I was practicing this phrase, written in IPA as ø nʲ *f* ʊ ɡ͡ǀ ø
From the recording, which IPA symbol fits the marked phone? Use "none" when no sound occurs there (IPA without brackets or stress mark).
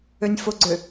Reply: f